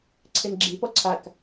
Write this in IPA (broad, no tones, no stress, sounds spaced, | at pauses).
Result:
ǀʰ e n ɡ͡ǁ i p ɔ ǀʰ a k